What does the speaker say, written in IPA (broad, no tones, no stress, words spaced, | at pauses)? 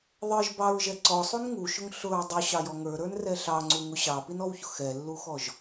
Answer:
ðˤə˞ʒ bɑɹʒɛ ǀɔsˤun ŋuʃʊŋ ɬʊɹ dˤuɕɑjɔ ŋə˞ɾə˞nrɛ ɬɑŋ͡ǀuŋʊ ɕɑpinɔwçʊ xɛlːuxɔʒ